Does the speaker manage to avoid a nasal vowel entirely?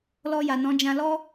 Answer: no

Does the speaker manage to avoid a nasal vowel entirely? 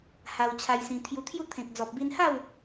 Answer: no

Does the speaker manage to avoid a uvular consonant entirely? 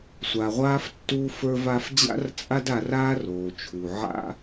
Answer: no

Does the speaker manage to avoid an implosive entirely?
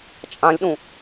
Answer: no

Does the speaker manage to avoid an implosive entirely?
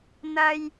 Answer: yes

